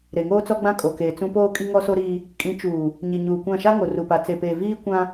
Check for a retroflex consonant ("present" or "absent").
absent